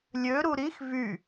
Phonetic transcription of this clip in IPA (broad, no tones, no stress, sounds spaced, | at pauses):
lʲ ø ɾ u ɾ i x v y